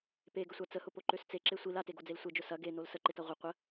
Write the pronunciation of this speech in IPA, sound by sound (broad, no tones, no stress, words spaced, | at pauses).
peɡəsʷa t͡səhʊpoǃøs t͡seǁe sʷil ateɡod͡zel sʷed͡ʒʊ sɐ ɡenol səǃɪtɐ ʁʷɪ qʷə